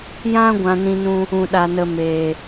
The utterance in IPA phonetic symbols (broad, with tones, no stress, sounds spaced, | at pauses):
j ã˦ ɡʷ ã˧ n ĩ˧ n ũ˧ | ũ˨ ɗ a˨ n ə˨ m eː˨